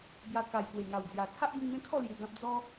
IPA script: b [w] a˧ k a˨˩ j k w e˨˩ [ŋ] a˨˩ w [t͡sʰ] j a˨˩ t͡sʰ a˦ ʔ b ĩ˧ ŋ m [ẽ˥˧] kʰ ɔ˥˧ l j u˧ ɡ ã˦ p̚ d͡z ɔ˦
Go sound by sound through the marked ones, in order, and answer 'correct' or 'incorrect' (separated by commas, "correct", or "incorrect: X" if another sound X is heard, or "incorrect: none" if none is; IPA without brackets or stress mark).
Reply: incorrect: j, correct, incorrect: d͡z, incorrect: ẽ˦